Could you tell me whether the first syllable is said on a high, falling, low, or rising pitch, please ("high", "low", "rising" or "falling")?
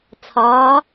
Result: rising